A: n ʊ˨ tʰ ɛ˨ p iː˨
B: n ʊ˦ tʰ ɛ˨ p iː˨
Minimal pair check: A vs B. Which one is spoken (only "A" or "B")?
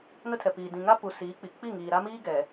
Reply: B